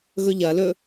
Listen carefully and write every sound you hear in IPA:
ɣ ɵ ʎ ɐ l ɵ

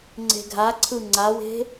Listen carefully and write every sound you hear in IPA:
ŋ͡ǀ e̤ ɡʱ a ǀʰ ɯ ŋ͡ǀ a w e̤

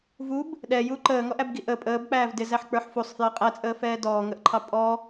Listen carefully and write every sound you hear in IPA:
v u b | ɗ ɛ j u ǃ əː ŋ ɔ ʔ æ b ɡ i ʔ ə pʼ əː b k͡p æː v d ɪ z æ ħ k͡p ə˞ ħ f u sˤ f j ʌ qʼ æ t͡sʼ əː f ɛː d ɔː ŋ ə ʔ ǃʰ ɑ pʼ ɔ

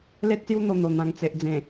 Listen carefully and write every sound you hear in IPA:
l e˦ t̚ s j u˦ n̪ o˧ n̪ o˨˩ n̪ ã˨˩ ŋ t͡s e˨ ʔ d͡z ẽ˨˩

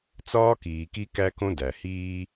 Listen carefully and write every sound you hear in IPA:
t͡s ɒː˦ k iː˨ k i˦ k æ˦ k õ˦ d æ˨ h iː˦

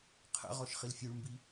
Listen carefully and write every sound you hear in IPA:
qʰ ə̰ ʁ ɔ ʃ χ i l fʲ ʉ ɭ m b i

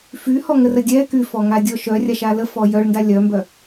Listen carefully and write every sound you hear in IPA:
f y h ɔ ŋ ə r ə dʲ ɛ k y f ɔ ŋ a dʲ ɔ ʃ œ rʲ a ʃ a l ə f ɔ j œ ɭ n d a lʲ œ m b œ

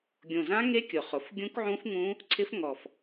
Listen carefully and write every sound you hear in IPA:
ɡʲ õ˨˩ z ã˦˥ ŋ e˦˥ kʲ ʊ˨˩ χ ʊ˨˩ f ɡʲ ũ˦˥ k ʕ ũ˦˥ f ŋ ũ˦˥ | ǀʰ ɪ˦˥ f ŋ ɔ˨˩ f

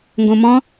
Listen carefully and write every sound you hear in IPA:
ŋ ɡ õ m ɔ̃

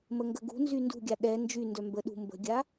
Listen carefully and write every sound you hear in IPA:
m ə ŋ ɡ ə ɡ ṳ n z y n d ṳ ɡʲ a ɗ ɛ n d͡ʒ y n d œ m b ə ɗ ṳ m b ə̤ ɡʲ a

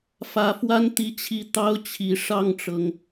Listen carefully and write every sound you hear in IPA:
f ä˨˩ f w a˦ n t̪ i˦ t͡ɕʰ i˥˨ t̪ ɑ˦ ʊ̯ t͡ɕʰ i˨˩ ʂ ɑ˥˨ ŋ ʈ͡ʂ ɤ˩ ŋ

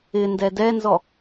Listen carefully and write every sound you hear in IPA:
ɪ n d ɛ d ɛ n z ɔ

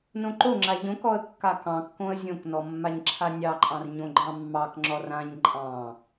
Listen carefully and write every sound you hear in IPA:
n õ ǃ o ŋ͡ǁ a ʎ õ k ɔ ə̯ kː a k ɑ̃ kː õ ə̯ zʲ õ k n ɔ mː a ɲ ǁʰ a nʲ ɑ ǃʼ ɑ̃ r ɲ õ ɡ͡ǃ ɑ̃ mː ɑ k ŋ͡ǁ ɔ r ã ɲ ǃʼ ɑ̃

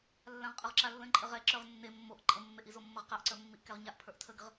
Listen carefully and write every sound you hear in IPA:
lː ã ʁ qʼ ə ʁ ǁ a lː ə̃ ǃʼ ə ʁ ɛ ǁ ə˞ ʁ nː e mː o ʔ ǃʼ ə̃ mː e ʔ i z o mː ə ʁ q a ʔ ǀ ə˞ mː i ʔ k ɛ ʁ ɲ a ʔ pʰ ə˞ ʔ tʰ ə ɡ ə ʁ

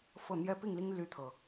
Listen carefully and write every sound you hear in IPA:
f ɤ˥˨ n̪ j ɛ˦ p i˥˨ ŋ l i˦ ŋ l y˦ t̪ʰ ɤ˨˩

